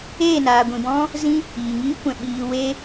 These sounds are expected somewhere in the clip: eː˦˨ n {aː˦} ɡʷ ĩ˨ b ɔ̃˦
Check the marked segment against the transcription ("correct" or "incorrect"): incorrect